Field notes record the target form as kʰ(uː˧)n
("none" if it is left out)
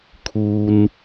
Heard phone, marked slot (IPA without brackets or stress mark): uː˧